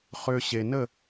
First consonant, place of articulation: uvular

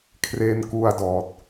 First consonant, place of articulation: velar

